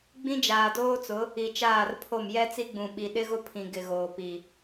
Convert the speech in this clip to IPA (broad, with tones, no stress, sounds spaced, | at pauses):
ɡ͡b ĩ˦ d͡ʒ aː˨ d oː˦ t͡s ʊ˨˦ | i˨ t͡ʃ aː˦˨ r pʰ o˦˨ m j ɛ˦ t͡s i˦ ɡ͡b ũ˨ ɓ i˨ ɗ ɪ˦ ɣ ʊ˦ pʰ ĩ˨ ɡ ɪ˨ ɣ oː˨ p i˨